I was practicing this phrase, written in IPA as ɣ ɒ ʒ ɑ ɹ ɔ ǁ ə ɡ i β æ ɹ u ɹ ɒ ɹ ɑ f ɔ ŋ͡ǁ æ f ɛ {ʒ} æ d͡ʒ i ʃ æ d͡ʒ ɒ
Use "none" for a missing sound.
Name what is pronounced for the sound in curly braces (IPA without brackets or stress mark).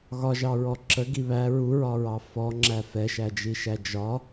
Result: ʃ